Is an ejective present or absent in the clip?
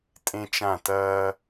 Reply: present